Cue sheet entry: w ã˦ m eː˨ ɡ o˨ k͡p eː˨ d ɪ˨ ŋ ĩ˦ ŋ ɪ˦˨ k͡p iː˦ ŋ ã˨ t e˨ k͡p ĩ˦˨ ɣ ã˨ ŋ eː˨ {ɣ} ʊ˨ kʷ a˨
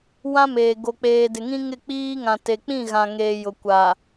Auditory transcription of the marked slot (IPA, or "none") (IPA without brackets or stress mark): j